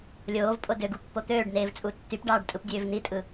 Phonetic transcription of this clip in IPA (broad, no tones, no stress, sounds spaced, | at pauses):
lʲ oː v pʼ o d ø ɡ u pː o t̪ øː ɖ n eː v t͡sʼ u tː y p ɖ ɑː ɖ tʼ ɯ p dʲ øː v n i tʼ ɯ